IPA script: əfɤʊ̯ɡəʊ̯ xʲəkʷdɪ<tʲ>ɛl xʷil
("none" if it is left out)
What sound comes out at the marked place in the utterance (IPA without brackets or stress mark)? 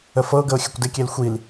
kʲ